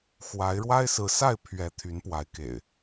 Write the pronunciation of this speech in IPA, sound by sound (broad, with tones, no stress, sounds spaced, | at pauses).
x w a˨˦ ɪ̯ ɻ w a˦ ɪ̯ s ɹ̩˨˦ s a˥˨ ɪ̯ pʰ ɥ ɛ˨˦ t̪ʰ y˨˦ n p w a˨˦ ɪ̯ k ḛ˨˩ ɪ̯